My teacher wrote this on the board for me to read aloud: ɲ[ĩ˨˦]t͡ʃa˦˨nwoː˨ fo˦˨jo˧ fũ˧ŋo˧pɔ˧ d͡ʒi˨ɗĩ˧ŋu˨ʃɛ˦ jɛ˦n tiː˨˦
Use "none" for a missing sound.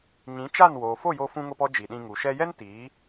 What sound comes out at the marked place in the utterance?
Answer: ĩ˨˦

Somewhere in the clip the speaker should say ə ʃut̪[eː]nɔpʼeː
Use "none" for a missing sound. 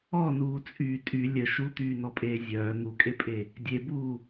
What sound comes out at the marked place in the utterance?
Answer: yː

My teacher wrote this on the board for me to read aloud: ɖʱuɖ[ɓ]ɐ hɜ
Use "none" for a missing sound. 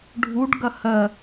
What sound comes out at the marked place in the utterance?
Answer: ɡ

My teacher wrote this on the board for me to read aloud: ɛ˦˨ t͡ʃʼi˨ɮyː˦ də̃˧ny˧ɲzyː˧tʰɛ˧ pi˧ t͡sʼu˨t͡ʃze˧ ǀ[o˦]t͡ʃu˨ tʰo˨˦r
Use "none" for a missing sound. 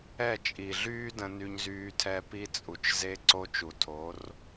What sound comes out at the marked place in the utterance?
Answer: o˧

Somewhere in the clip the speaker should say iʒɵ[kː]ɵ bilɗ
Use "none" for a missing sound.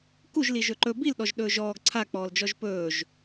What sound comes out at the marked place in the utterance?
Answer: ǃ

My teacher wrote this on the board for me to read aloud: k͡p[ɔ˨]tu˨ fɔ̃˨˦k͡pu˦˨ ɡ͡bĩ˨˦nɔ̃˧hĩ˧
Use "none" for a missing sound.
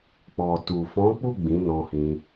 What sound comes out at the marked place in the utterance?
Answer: ɔ˨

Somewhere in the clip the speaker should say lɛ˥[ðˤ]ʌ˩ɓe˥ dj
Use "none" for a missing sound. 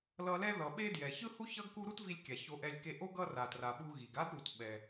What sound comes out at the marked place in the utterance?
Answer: ð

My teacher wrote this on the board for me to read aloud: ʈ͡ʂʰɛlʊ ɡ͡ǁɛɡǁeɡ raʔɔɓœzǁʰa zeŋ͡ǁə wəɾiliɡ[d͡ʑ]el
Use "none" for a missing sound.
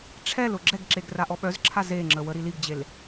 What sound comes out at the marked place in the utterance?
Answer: d͡ʑ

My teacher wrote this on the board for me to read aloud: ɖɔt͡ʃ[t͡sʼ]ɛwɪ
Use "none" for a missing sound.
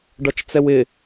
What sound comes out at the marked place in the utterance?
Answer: t͡s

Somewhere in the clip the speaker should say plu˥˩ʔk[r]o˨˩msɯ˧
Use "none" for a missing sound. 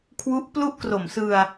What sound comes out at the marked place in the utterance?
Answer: r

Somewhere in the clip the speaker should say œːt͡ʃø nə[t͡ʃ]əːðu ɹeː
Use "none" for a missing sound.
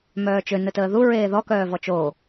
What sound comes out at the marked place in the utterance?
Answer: t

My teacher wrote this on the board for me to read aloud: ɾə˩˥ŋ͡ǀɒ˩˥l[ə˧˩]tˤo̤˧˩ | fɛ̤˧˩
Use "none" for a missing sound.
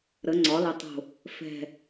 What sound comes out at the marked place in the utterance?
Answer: ə˧˩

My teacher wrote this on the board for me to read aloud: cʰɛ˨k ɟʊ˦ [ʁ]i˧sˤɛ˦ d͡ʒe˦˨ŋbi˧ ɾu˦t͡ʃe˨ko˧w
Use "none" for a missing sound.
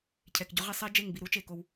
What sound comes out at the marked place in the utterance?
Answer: ʁ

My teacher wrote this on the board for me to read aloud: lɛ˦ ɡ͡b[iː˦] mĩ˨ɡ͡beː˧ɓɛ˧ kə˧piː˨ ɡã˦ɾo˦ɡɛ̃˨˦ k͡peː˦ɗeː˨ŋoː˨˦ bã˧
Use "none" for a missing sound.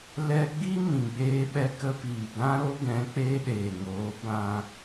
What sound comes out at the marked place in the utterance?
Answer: i˦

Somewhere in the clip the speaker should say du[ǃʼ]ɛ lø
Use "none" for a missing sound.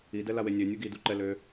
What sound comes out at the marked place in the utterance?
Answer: ǃ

